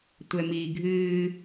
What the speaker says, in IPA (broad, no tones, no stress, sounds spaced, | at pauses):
tʷ ɛ m iː ɡʱ ɨː